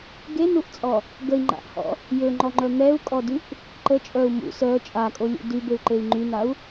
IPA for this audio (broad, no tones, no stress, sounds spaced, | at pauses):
ɡ e n u ʔ t͡sʼ ɔ | ɡ ə i̯ ŋ͡ǃ a̰ ʔ h ɔ̰ | j ø ŋ͡ǃ ɔ ŋ͡ǃ œ m ɛ u̯ kʼ ɔ d y ʔ | ǃ ə t͡ʃʼ œ u̯ m ṵ s œ t͡ʃʼ a kʼ o lʲ ṵ d y b e u̯ ǃ e i̯ ŋ͡ǃ y n a u̯